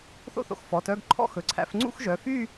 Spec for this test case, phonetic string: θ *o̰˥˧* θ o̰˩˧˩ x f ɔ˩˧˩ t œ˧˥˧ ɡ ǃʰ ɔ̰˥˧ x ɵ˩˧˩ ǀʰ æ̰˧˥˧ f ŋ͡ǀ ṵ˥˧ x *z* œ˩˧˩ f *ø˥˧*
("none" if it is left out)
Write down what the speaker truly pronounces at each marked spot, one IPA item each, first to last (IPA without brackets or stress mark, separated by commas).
o̰˥˧, ʒ, y˥˧